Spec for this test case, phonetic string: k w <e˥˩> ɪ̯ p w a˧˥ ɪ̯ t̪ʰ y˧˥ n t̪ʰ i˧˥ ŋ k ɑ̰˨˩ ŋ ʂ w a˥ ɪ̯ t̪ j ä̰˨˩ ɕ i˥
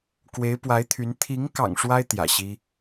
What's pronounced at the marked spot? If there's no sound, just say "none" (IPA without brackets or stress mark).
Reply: e˧˥